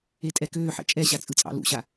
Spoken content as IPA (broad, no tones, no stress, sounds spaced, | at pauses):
e tʼ ɛ k øː ħ ɛ̰ t͡ʃʼ ɛ ɕ a t͡sʼ ɯ t͡sʼ ɑ̰ l ṵ ɕ a